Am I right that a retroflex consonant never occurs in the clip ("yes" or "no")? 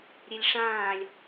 no